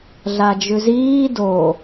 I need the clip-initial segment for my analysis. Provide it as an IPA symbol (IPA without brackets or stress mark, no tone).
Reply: ɮ